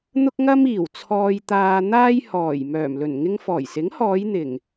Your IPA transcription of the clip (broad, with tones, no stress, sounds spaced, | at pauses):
n̪ ʊ˥ k̚ ŋ ɐ˥ m iː˨˩ w t͡sʰ ɔː˧ j t̪ aː˧ n̪ aː˥ j h ɔː˨˩ j m œː˨˩ m l ɵ˨˩ n ŋ ɪ˧ ŋ f ɔː˨˩ j s ɪ˨˥ ŋ h ɔː˨˧ j n̪ ɪ˨˩ ŋ